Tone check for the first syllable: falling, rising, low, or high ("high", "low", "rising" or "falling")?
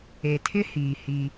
low